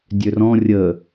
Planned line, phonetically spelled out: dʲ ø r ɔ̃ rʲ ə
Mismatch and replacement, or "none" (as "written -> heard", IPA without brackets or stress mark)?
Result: none